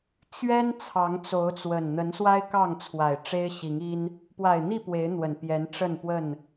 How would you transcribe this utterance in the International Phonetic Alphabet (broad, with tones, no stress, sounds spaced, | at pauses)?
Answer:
t͡ɕ ɥ ɛ˦ n t͡sʰ ɑ˨˦ ŋ t͡s o˨˦ ʊ̯ t͡s w ə˨˩ n n̪ ə˨˦ n s w a˦ ɪ̯ k ɑ˥˨ ŋ t͡sʰ w a˨˩ ɪ̯ ʈ͡ʂ e˦ ɪ̯ ɕ i˨˦ ŋ i˦ n | p w a˨˩ ɪ̯ n̪ i˥˨ p w e˨˦ ɪ̯ n̪ w ə˨˩ n p j ɛ˨˦ n ʈ͡ʂ ə˥˨ n p w ə˥˨ n